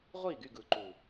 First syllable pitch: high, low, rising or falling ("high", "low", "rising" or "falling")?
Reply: falling